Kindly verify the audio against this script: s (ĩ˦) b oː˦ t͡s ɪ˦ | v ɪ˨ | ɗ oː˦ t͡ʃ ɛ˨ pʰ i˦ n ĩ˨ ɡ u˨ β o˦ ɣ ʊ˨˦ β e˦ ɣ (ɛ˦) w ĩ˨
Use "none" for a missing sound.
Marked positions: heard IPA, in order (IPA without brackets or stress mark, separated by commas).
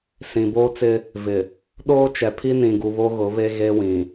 ĩ˨, e˦